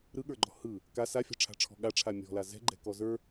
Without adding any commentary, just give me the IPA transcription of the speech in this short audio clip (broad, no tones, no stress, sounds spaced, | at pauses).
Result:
ɾ ɯ ɠ ə˞ ɡ͡ǃ ɔ̤ h ɯ | k a s a fʲ ɑ̤ ʈ͡ʂʰ a̤ ʈ͡ʂʰ ɔ̤ ɠ a ʈ͡ʂʰ a mʲ ɔ̤ l a z ɛ̤ ɡ͡ǃ ɛ̤ k ɔ z ə˞